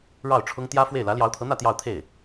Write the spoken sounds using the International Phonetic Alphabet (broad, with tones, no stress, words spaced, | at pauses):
ɻɑ˥˩ʊ̯ʈ͡ʂʰʊ˥ŋ t̪jä˥fwe˥˩ɪ̯ lä˧˥ljɑ˧˥ʊ̯t̪ʰɤ˧˥n̪ä˥˧ t̪jɑ˥˧ʊ̯t̪ʰe˥˩ɪ̯